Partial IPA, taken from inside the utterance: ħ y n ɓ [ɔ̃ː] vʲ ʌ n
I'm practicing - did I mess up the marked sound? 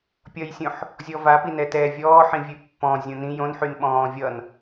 no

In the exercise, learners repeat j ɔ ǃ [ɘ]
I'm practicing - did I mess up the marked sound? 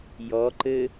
no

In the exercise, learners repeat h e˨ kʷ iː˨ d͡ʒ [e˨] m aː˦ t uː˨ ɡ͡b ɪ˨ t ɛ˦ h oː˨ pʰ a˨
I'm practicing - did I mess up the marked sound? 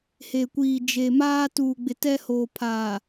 no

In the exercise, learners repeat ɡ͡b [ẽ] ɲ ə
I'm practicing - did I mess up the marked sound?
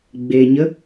yes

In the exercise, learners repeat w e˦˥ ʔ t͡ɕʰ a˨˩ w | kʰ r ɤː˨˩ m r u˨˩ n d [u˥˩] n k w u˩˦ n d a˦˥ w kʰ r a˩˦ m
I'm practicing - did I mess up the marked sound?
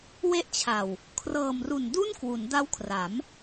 no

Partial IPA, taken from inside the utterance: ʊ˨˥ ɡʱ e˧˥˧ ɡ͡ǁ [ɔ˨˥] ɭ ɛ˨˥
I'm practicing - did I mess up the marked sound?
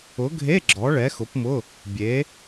no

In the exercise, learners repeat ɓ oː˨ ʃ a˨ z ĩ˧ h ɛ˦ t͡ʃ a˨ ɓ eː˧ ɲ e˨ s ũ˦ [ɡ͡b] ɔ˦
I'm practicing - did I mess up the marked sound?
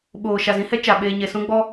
no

